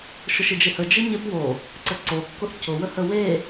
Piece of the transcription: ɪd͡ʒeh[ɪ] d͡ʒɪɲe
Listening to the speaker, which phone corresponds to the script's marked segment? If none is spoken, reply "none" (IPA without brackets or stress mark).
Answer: ə